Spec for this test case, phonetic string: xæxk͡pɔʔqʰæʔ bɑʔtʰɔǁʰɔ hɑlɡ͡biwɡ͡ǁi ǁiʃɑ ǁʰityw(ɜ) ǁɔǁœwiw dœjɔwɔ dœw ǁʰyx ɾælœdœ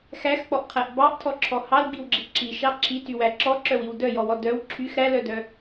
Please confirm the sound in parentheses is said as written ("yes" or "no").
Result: no